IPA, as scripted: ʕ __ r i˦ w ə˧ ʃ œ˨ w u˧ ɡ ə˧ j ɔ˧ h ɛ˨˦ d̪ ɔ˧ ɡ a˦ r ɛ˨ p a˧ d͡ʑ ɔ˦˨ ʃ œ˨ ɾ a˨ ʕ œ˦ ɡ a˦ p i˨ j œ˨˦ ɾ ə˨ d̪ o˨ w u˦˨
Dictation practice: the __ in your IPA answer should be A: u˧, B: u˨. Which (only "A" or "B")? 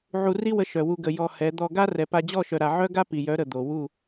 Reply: A